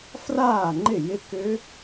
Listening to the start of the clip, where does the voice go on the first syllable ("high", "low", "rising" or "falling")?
falling